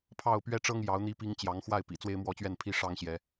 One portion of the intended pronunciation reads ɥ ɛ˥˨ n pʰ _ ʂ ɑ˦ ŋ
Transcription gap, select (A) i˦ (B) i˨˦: A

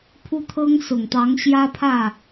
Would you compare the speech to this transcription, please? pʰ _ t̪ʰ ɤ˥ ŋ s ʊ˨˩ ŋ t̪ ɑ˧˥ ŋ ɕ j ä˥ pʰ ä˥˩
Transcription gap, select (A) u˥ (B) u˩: A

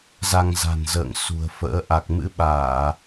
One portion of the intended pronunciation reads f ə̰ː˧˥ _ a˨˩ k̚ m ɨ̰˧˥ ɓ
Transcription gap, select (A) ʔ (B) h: A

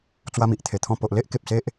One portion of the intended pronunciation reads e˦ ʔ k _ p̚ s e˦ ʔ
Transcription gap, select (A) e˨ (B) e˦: A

